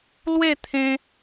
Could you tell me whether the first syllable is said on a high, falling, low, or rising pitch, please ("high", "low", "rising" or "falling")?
falling